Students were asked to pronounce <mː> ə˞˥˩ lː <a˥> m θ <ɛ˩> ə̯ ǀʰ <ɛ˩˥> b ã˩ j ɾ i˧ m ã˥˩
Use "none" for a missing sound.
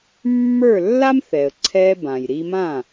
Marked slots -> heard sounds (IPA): mː, a˥, ɛ˩, ɛ˧

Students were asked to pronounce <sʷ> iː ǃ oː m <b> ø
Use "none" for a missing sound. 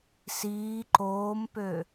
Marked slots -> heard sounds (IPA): s, p

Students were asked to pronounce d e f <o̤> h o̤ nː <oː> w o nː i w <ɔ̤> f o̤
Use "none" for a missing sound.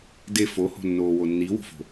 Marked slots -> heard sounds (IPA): o, oː, o̤

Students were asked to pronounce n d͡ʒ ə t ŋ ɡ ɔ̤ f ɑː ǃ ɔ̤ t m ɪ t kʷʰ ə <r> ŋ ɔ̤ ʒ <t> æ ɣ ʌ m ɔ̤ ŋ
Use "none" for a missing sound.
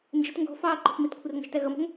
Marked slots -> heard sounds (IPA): r, t

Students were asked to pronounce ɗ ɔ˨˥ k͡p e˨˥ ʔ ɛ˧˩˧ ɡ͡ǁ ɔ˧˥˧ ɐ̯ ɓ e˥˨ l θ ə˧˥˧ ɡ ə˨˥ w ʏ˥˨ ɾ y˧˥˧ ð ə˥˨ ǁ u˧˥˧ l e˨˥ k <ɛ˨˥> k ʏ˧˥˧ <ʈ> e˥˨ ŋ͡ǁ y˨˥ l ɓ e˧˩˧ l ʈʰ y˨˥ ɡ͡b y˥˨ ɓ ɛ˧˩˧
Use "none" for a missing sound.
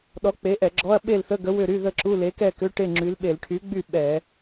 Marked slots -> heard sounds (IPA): ɛ˥˨, ʈ

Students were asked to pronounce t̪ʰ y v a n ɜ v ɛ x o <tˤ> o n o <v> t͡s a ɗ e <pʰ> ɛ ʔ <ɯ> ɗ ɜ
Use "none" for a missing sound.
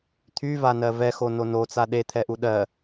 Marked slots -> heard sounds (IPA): n, none, t̪ʰ, u

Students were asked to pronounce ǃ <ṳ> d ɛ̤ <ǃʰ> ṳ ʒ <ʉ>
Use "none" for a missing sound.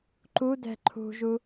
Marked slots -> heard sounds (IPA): u, ǃʰ, u

